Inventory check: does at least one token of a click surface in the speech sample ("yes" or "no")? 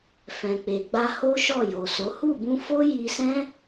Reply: no